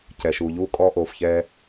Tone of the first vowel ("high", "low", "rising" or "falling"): low